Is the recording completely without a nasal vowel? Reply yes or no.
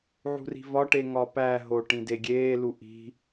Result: no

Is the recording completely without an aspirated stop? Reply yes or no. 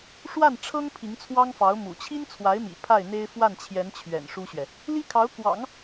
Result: no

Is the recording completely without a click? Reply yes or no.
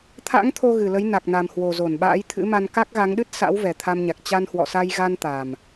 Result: yes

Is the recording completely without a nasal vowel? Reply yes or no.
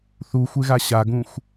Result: no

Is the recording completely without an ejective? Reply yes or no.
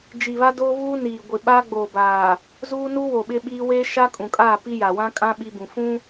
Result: no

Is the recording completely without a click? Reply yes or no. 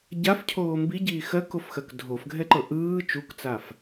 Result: no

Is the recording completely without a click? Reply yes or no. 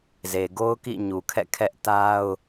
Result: yes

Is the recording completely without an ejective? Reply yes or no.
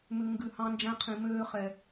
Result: yes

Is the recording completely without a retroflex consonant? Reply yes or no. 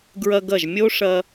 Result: no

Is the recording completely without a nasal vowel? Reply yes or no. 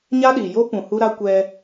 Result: no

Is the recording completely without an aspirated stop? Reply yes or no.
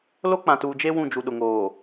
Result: yes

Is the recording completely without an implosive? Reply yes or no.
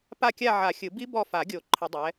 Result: yes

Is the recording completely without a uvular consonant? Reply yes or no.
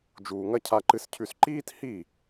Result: yes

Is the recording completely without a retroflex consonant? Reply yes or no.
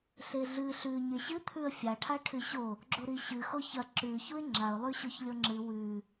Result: no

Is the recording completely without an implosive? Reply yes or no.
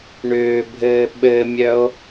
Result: no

